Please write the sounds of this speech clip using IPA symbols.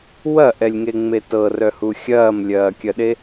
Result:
w ɐ ʔ ɛ lʲ ŋ e ŋ͡m e t ɤ r œ h u xʲ ɐː m lʲ ɐː kʲ ɐ ɗ e

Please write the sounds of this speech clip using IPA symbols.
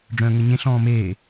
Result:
ɖ͡ʐ œ̃ː ŋ ə ɲ ẽ ɬ ɔ̃ː m eː

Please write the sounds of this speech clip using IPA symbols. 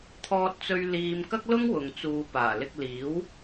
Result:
t̪ʰ ɔː˧ t̚ t͡s ɵ˧ ɥ l iː˧ m k ɐ˥ k̚ l ʊ˥ ŋ w ʊ˨ ŋ t͡s uː˨˧ p aː˨˩ l ɪ˧ k̚ l iː˨˥ w

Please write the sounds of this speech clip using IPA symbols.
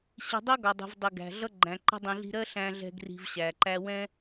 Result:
ɕ i̤˧ dˤ ɜ˦ ɡ ɒ˨ dˤ i̤˨ v dˤ i˨ ɡ æ̤˨ ɮ ʌ˦ ɡ͡ǃ æ̃˨ ǃ ɛ̤˧ dˤ ĩ˨ ɮ i̤˧ ɾ ɜ˦ ɬ æ̃˧ ɮ ɛ̤˧ ɡ r i̤˧ v ɕ æ˨ ǃ æ˦ w ɛ̃˦

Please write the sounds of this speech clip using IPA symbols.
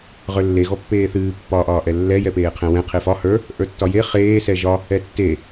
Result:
ʁ ə˞ lː e ɣ ɔ pː eː θ ɨː pː ɒː ʔ ɒː ʔ ɛ lː ɛ j ɛ p eː qʰ ɛ̃ w ɛ̃ qʰ e f ɒ h ə˞ | ʔ ə˞ tː ɒ j e χ eː s ɛ ʒ ɒ | ɛ tː e

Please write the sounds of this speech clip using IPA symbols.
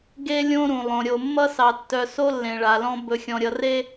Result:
ɡ e˦ lʲ õ˦ ɾ ũ˨ lˠ õ˨ ɾʲ o˨ mː ʌ˦ s ɑ˨ tː œ˨ s o˦ lː ẽ˨ ɭ a˨ l ɔ̃˦ b ɵ˨ xʲ ɔ̃˨ ɾʲ ʌ˨ r e˦

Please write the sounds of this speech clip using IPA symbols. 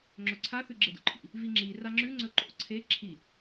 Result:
ŋ͡ǁ ɵ ǀʰ a θ ʉ ɡ͡ǁ e d ṵ ǃʰ ḭ | v i ŋ͡ǁ i r a ŋ͡ǁ ʉ ŋ͡ǀ ɵ ǃ o̰ ǀʰ e ǁʰ i

